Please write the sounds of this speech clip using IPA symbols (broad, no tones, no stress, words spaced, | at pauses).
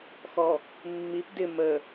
xɔ | mːip dɪ mə